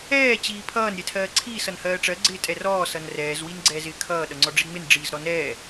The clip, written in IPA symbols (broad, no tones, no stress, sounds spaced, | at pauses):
ɛː t͡ɕ iː pʰ ʌː n ɾʲ ɛ tʰ ɜː ǀʰ iː s ʌ n h ɜː ʈ͡ʂ ɜ ɡ͡ǀ ɪː tʼ ɛ r ɔː s ʌ n r ɛː z w i n ɡ͡ǀ ɛː z ɪː kʰ ʌː ɗ ʌ ŋ͡ǀ ɔ ɖ͡ʐ i ŋ͡m ɪ n ɖ͡ʐ iː z ɾ ɔ n ɛː